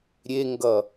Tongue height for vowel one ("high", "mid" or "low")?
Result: mid